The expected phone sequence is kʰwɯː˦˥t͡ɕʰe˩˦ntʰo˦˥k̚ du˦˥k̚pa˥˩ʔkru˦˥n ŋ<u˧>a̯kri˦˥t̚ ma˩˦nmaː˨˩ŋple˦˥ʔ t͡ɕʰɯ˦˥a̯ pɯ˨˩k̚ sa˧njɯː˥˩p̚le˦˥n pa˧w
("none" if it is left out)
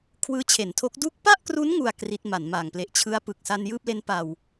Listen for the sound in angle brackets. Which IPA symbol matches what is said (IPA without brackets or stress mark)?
u˧